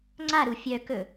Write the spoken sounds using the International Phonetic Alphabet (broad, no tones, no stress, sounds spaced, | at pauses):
ŋ͡ǀ a ɾ u fʲ œ k ɵ